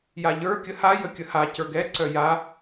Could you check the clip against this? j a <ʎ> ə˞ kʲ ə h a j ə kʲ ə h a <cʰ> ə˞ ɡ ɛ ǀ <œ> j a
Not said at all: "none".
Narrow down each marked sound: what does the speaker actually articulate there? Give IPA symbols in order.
ʎ, c, œ

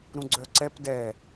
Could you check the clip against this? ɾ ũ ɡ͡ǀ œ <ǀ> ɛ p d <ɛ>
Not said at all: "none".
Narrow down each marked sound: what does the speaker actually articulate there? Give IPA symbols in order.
ǀ, ɛ

